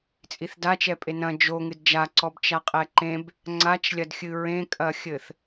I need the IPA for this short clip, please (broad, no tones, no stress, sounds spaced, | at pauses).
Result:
t͡sʼ i θ d a t͡ʃ ɛ pʼ e n ɐ̃ d͡ʒ o ŋ ɨ d d͡ʒ a ǀ ɔ b t͡ʃ a qʼ ɛ ǃ ẽ b | ŋ͡ǀ a t͡ʃ lʲ ɐ d xʲ ɨ ɹ ẽ kʼ ɐ xʲ ɘ θ